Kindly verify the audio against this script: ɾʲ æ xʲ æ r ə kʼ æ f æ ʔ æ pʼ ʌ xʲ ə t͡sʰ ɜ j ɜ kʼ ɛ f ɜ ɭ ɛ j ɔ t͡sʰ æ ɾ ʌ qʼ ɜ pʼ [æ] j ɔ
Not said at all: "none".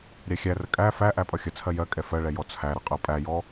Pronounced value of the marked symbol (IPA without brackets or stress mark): æ